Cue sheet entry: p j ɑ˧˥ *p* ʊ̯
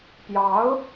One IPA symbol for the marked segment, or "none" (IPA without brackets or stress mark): none